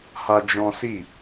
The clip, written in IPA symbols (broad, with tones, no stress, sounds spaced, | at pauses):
h a˦ d͡ʒ ɔ̃˦ s i˦˨